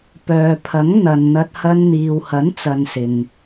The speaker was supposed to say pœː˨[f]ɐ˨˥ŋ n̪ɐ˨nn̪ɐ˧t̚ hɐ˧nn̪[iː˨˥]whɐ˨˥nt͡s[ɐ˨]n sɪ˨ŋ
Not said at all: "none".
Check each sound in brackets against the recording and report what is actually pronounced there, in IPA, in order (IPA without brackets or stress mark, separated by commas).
pʰ, iː˨, ɐ˨